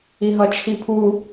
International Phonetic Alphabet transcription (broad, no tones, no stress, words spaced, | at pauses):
iɦʌt͡ʃʰipʰu